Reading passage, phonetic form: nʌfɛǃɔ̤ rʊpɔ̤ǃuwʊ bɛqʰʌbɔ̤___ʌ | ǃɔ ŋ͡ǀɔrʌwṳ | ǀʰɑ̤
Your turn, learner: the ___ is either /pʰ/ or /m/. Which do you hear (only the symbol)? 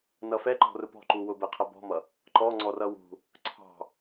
m